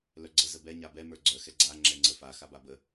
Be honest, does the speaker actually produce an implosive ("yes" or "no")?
no